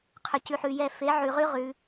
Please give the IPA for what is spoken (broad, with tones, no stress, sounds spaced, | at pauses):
qʰ ʏ˨ c ʉ˨ ħ ʉ˨ j ɛ˦˨ f e˨˦ ʕ ʉ˨ ʁ ʉ˦ ʁ ʉ˨˦